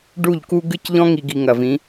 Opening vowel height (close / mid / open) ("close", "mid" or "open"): close